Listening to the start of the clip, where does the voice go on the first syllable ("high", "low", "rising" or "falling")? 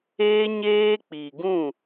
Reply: high